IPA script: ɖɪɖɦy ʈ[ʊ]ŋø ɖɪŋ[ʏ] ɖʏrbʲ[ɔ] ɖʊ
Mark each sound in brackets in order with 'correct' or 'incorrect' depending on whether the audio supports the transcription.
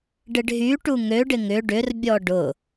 incorrect: u, correct, correct

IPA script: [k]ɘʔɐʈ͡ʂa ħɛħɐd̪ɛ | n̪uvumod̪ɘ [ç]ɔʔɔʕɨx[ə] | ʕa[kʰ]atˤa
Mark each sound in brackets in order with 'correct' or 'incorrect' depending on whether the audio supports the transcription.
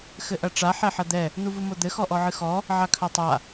incorrect: x, incorrect: x, incorrect: ɔ, correct

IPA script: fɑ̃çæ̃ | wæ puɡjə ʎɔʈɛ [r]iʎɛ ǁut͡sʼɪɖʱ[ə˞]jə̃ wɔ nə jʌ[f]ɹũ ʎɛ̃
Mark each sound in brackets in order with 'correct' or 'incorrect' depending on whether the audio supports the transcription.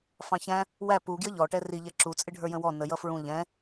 correct, correct, correct

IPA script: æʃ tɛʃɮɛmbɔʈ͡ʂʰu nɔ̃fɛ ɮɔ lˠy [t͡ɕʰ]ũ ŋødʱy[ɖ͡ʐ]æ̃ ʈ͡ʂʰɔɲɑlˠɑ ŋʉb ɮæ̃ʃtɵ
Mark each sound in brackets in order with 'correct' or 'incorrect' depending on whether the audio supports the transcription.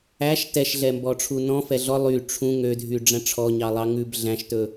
incorrect: ʈ͡ʂʰ, correct

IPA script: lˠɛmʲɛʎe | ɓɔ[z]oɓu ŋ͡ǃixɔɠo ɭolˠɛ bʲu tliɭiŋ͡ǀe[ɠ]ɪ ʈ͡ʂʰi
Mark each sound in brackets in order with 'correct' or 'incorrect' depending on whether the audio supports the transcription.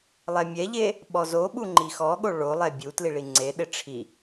correct, incorrect: ɗ

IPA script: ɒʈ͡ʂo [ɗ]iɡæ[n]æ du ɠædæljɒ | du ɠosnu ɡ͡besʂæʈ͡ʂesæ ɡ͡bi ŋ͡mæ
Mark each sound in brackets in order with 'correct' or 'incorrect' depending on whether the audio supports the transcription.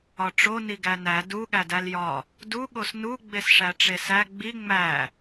incorrect: n, correct

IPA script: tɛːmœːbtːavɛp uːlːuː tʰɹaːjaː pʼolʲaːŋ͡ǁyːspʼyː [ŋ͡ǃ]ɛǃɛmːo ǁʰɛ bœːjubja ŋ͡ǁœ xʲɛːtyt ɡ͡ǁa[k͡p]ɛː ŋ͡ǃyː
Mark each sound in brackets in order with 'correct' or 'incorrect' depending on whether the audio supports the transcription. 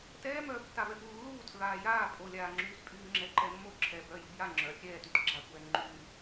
incorrect: ŋ͡ǁ, incorrect: kʷ

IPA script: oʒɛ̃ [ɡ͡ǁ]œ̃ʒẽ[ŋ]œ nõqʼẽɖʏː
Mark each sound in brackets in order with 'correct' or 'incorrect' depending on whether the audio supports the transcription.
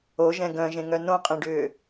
incorrect: ɡ, correct

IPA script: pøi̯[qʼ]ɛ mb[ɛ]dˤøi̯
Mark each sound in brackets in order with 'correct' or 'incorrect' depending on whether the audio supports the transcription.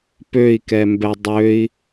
incorrect: k, correct

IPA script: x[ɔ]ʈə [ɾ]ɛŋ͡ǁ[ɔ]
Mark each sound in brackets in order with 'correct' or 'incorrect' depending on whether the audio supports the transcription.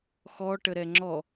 correct, correct, correct

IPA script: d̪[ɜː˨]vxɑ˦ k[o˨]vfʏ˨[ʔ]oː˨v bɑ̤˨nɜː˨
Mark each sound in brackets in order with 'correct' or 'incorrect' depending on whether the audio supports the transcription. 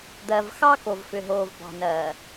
incorrect: ɜ˨, correct, incorrect: ɦ

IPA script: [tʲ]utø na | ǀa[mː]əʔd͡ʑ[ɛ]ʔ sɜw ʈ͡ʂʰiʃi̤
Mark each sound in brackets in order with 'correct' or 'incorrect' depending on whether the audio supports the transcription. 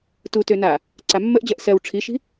incorrect: t, correct, incorrect: ɜ

